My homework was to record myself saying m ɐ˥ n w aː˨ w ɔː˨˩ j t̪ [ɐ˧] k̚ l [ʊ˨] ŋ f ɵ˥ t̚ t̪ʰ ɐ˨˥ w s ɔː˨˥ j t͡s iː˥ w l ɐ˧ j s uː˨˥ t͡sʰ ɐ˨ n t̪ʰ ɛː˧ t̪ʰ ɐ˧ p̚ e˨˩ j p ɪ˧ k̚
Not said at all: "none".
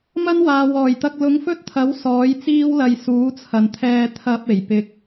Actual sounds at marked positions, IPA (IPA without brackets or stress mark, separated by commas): ɐ˧, ʊ˨˧